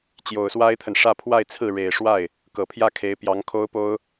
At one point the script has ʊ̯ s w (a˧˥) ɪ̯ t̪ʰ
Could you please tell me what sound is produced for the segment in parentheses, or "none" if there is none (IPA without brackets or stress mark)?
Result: a˥